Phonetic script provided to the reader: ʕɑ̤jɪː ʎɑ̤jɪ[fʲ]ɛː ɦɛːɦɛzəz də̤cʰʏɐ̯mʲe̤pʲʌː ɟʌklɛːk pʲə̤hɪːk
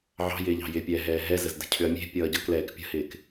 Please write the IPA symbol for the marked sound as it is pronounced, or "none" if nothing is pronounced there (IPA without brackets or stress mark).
pʲ